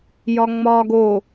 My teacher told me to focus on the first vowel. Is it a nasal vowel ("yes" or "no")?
no